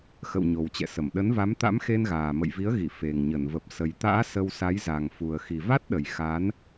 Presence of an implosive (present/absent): present